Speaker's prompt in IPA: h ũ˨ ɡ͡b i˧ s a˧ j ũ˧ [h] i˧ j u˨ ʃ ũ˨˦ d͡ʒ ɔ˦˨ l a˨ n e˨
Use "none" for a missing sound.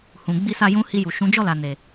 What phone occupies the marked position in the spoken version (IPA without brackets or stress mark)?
h